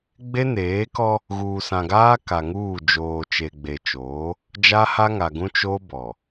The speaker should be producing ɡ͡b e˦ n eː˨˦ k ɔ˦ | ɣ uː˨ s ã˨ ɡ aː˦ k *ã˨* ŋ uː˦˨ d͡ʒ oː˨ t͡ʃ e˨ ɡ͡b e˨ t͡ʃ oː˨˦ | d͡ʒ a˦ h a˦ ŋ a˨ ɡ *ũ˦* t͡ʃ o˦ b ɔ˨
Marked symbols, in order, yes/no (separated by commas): no, yes